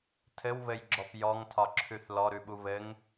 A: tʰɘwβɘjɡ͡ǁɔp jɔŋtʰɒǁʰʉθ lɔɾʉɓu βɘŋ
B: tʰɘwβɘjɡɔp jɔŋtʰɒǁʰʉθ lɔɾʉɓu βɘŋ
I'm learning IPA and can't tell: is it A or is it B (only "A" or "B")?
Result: A